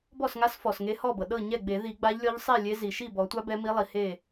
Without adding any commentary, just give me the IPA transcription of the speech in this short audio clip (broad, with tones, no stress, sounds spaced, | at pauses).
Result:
b ɔ˥˩ s ŋ a˧˥ s f ɔ˩ s ŋ e˧˥ h ɔ˥˩ b ɤ˩ ɗ ɤ˥˩ ɲ ɛ˥˩ ɡ͡b e˨˩˦ ð i˨˩˦ ɡ͡b a˧˥ ʎ lʲ ɔ˧˥ ʎ sˤ i˥˩ lʲ e˧˥ z i˩ ʃ i˥˩ b ɔ˨˩˦ tʷ a˧˥ b ɛ˧˥ m i˧˥ lˠ i˩ h e˥˩